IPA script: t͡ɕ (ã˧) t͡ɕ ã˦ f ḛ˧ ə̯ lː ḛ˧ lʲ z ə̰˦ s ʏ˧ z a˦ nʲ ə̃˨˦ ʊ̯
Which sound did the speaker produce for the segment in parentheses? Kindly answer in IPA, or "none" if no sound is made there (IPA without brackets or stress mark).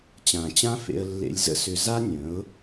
ã˨